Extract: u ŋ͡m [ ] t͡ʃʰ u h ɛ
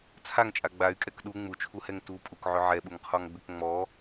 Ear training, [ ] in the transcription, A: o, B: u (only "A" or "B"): B